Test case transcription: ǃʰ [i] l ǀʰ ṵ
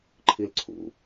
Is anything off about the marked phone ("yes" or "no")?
no